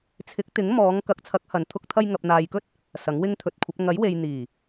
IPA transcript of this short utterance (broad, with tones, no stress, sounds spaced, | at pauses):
t͡sʰ ɪ˨˥ k̚ t̪ ɪ˨˥ ŋ m ɔː˨˧ ŋ k ɐ˨˥ k̚ t͡sʰ ɐ˨˥ k̚ h ɐ˨ n t̪ʰ ʊ˧ k̚ t̪ʰ ɐ˧ j ŋ ɐ˨ p̚ n̪ aː˨ j k ɵ˥ t̚ | s ɐ˨˥ ŋ w ɪ˥ ŋ t̪ʰ ɵ˨˥ t̚ kʷʰ ɐ˨˥ p̚ ŋ ɐ˨˥ j w e˨ j n̪ iː˨˩